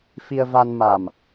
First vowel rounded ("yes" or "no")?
no